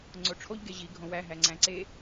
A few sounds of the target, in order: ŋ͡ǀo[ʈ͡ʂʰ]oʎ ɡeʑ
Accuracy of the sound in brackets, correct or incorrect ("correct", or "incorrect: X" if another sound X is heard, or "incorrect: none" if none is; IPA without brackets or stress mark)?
correct